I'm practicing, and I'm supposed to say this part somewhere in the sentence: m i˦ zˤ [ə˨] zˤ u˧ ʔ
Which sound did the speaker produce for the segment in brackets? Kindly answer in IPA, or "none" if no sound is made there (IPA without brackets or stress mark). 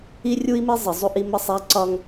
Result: ə˨